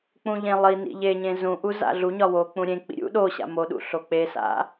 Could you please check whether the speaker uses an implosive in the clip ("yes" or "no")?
yes